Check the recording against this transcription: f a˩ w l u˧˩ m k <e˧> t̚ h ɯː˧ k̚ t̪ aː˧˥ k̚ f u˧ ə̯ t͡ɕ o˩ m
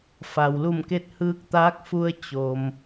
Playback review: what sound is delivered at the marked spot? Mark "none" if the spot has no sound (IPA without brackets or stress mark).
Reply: e˧